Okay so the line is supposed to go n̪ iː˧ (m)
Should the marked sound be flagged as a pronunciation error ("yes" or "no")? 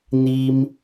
no